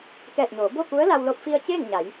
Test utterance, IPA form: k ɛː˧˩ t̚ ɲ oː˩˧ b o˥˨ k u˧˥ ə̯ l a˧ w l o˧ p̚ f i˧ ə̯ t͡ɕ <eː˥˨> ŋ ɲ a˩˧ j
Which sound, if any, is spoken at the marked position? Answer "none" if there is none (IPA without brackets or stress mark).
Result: eː˥˨